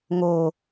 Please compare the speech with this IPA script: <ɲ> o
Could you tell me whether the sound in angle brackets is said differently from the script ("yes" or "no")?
yes